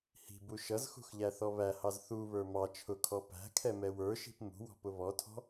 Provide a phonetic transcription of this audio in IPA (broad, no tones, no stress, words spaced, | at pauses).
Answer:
hi̤bu ʃʌzxṳxʎæθɔ βæhɑz θuβə˞ mɑ t͡ʃʰʊkʰɔ pæ̤kʰɛmɛ wə˞ʃi̤p mṳwɔ̤pʊ βɔtʰɔ̤